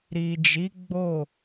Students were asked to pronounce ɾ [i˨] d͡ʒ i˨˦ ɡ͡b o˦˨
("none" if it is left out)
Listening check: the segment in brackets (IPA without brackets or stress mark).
i˨